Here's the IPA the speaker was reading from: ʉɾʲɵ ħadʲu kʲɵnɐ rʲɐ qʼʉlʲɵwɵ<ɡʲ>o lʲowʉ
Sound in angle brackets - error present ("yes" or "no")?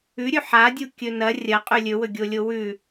no